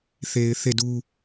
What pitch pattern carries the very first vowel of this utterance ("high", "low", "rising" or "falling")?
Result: low